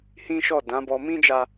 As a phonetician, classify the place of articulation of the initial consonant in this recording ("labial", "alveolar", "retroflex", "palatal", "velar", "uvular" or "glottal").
glottal